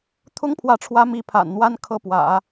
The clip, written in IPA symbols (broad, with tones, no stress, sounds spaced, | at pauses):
t̪ʰ ʊ˥ ŋ pʰ w ä˧˥ ʈ͡ʂʰ w ä˧˥ m i˧˥ pʰ a̰˨˩ n n̪ w a˥ n kʰ ɤ˥˩ p w ä̰˨˩˦